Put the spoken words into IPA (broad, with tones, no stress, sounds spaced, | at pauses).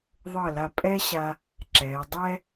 ðˤ ɤ˧˩ l a˧˩ pʼ ɛ˥ ɕ a˧ | ǁ ɛː˩˧ dˤ ɛ˥